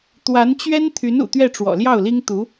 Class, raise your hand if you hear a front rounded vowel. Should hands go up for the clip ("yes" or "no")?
yes